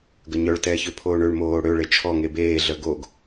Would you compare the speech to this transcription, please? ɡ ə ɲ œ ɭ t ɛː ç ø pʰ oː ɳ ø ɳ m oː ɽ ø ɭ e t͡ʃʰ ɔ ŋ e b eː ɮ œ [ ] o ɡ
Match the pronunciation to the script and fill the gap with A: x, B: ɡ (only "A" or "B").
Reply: B